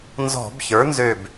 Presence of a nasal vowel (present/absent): absent